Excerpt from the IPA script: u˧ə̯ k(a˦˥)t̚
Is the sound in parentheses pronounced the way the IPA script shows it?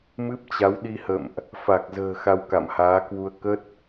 no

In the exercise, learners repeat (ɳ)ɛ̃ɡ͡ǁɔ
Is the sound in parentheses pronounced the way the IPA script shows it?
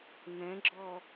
no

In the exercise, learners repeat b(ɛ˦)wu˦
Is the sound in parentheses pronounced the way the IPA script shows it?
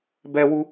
yes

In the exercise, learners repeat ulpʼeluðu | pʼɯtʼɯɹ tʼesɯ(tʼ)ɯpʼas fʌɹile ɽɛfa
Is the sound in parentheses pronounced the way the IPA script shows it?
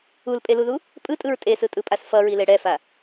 yes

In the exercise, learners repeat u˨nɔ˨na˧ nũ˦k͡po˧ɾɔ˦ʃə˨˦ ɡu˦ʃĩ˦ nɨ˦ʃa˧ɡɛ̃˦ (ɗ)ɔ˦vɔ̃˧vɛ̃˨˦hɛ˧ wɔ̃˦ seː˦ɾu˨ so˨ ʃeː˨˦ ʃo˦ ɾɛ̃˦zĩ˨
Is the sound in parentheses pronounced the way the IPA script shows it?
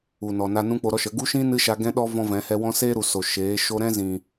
yes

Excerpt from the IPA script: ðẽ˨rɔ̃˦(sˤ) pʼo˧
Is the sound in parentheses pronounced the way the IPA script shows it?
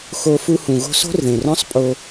yes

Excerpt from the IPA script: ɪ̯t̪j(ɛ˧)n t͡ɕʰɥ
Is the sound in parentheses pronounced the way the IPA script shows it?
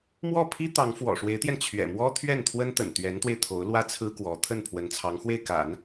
yes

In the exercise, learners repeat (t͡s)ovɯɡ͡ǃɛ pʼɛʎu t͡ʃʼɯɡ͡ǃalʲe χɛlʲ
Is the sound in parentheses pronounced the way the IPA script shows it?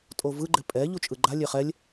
no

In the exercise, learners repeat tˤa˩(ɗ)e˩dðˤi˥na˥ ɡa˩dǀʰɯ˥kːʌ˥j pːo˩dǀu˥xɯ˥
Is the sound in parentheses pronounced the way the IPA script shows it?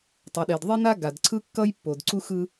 yes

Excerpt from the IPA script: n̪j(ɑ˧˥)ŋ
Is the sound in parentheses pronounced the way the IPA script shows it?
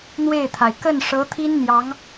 yes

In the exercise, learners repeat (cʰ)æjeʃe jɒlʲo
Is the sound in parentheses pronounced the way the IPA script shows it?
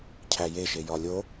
yes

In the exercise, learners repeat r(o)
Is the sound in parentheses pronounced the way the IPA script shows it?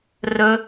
no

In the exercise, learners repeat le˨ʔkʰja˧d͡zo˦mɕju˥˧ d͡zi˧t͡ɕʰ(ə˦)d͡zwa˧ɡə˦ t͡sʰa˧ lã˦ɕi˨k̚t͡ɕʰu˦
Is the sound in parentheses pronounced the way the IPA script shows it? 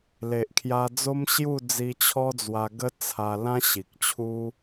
no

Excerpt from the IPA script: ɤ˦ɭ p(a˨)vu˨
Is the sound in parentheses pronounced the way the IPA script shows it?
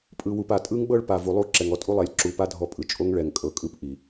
yes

